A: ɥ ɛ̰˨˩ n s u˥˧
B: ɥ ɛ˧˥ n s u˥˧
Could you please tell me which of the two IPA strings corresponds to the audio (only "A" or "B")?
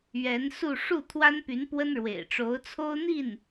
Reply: B